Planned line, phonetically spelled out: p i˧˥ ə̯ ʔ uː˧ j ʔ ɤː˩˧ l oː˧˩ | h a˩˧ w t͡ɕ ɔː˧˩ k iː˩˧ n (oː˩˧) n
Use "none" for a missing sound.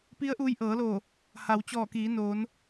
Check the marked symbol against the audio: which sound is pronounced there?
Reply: oː˩˧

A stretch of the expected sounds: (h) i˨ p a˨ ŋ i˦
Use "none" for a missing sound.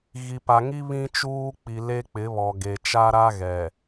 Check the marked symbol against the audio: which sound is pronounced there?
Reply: ɣ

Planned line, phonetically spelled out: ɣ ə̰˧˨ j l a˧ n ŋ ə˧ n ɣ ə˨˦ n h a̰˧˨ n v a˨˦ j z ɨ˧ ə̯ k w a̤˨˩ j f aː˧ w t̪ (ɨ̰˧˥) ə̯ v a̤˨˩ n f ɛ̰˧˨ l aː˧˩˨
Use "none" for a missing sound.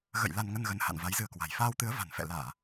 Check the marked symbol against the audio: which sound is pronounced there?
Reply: ɨ˨˦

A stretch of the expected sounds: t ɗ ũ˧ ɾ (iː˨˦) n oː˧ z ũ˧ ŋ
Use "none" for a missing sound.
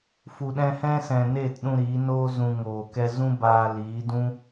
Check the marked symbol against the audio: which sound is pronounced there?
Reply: iː˨˦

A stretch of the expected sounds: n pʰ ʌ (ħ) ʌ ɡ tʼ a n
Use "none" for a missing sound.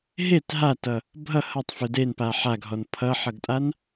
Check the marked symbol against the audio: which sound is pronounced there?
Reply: ħ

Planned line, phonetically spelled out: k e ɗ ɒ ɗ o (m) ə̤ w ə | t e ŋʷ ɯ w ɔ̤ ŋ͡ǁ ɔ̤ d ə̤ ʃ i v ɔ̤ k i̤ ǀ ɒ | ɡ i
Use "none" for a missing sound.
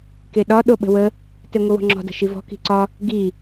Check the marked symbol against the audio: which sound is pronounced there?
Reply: ɓ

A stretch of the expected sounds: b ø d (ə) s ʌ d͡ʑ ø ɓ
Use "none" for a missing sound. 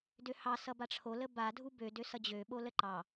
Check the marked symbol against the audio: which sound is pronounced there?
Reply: ø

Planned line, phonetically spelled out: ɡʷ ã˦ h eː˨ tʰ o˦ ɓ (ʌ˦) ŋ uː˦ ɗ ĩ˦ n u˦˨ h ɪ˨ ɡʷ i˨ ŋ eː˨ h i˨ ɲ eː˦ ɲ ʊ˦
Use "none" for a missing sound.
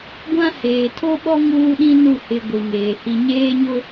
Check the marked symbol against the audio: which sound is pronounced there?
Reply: ɔ˦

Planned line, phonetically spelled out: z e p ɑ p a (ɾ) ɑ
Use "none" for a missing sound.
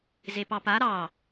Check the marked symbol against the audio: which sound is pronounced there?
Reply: ɾ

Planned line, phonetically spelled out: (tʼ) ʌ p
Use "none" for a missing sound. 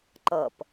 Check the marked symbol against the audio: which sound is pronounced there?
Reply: ǃ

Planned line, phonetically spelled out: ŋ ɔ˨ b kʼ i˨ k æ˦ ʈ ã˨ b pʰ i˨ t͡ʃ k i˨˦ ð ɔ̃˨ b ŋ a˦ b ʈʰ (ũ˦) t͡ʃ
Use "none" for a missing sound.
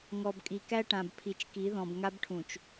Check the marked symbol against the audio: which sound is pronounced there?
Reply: ũ˨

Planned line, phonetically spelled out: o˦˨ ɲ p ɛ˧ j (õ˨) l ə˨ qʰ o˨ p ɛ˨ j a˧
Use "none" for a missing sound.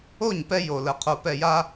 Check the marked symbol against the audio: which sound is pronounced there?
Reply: o˨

